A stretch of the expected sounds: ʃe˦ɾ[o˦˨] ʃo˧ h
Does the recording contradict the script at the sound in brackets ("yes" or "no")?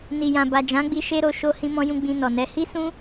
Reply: yes